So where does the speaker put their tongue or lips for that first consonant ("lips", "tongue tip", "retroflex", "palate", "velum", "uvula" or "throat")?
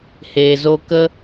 throat